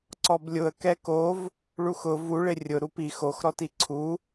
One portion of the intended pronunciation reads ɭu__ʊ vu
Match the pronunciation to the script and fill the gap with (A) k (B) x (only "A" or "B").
B